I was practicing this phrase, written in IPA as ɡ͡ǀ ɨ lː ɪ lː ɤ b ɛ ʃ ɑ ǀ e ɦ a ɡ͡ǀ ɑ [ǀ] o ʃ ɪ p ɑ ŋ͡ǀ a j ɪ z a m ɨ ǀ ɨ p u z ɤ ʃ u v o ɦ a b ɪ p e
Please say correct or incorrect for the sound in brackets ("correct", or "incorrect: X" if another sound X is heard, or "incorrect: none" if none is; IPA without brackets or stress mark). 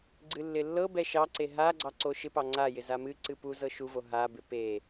correct